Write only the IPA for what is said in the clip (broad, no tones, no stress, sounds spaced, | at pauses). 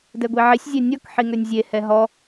d ɛ ɡʷ i ʕ i sʲ zʲ ɛ nʲ ɔ k ħ i ŋ ø nʲ zʲ e h ɛ ɦ ɔ